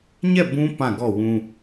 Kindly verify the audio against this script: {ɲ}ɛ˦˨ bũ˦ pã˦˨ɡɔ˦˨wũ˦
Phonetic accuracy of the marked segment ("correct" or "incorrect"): correct